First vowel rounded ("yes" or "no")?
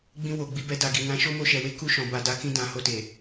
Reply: no